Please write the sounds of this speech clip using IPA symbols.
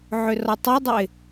ʕ ʏ r ɒ tˤ ə ɪ̯ dˤ ə ɪ̯

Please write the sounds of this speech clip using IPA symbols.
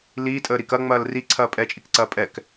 l iː tʼ əː ɾ i k ɐ ŋ͡m ɐː l r i ǀʰ ɐː pʼ ɛ t͡ʃʼ i k ǀ ɐː pʼ ɛ k

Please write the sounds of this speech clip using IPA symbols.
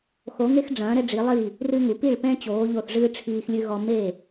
x o˩˧ ŋ e˧ x ɖ͡ʐ ɐ̃ː˩˧ ɾ ɛ˧ ɖ͡ʐ i˩˧ lˠ i˧˩ | r ɨ˧ ŋ u˩˧ p i˧˩ ɭ p ɛ̃˧ t͡ɕ oː˩˧ ʎ o˧˩ θ ʐ ɨː˧ ʈ͡ʂʰ iː˧ x lʲ ɨ˧ ɣ ɔ˧ m e˧˩

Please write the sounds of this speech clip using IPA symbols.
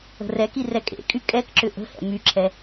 ə̤ r ɛ k i r ɛ kʼ ḛ kʼ y kʼ ɛ k ǁ ʏ ʔ ə̤ h ɛ̰ m y ǁʰ ɛ

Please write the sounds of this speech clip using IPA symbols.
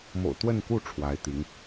m o̰˨˩ ʊ̯ t̪ w ə˥˧ n k u˥˩ ʈ͡ʂʰ w a˧˥ ɪ̯ t̪ i˧˥ ŋ

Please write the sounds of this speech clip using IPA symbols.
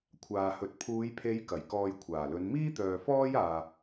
kʷʰ aː˨ h ɵ˨ t̚ pʰ uː˨˧ j pʰ e˨˧ j k ɐ˨˩ j k ɔː˨ j kʷʰ aː˨˩ l ɵ˨˧ n m iː˥ t̪ œː˨ f ɔː˥ j aː˨

